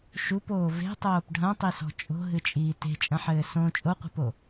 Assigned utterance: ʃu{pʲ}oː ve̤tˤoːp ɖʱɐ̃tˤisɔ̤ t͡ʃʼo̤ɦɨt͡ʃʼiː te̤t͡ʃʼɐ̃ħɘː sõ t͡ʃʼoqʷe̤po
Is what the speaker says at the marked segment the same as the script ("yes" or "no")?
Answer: no